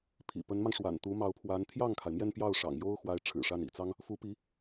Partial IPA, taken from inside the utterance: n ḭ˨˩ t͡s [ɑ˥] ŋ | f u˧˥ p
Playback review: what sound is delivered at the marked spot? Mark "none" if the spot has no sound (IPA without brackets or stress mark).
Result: ɑ˥